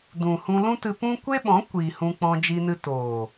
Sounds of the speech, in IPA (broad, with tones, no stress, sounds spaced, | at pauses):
d ũ˨ h ũ˧ l ũ˦ t ɨ˧ p ũ˦ kʷ e˦ ɓ ɔ̃˨˦ kʷ iː˨ h ũ˧ k͡p ɔ̃˧ d͡ʒ i˧ n ɨ˧ t oː˨